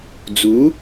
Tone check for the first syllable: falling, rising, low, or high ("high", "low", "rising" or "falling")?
rising